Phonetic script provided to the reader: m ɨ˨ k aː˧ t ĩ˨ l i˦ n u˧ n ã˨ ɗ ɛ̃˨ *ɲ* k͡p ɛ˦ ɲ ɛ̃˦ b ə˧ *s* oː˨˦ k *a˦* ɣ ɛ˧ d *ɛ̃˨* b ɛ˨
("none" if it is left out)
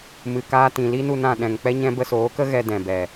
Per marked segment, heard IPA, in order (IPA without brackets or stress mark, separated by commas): ŋ, s, ə˦, ɛ̃˨